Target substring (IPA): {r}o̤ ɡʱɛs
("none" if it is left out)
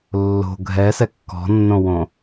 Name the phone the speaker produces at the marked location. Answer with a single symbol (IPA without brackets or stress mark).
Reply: lː